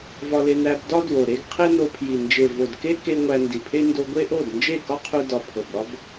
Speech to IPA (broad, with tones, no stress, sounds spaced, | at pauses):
v ɒ˧ l e˧ n æ˧ b d ɒ˦ d w o˨ ɾ e˦ ɡ qʰ e˦ n o˧ pʰ j i˨ n d͡ʒ e˨ v o˨ d k e˦ k e˧ ŋʷ æ˧ n d i˨ pʰ e˦ n d o˧ ɡʷ e˦ ʔ o˦˨ d n d͡ʒ e˦˨ k ɒ˦ qʰ u˧ d ɒ˨ pʰ o˨ b ɾ ɒ˦ b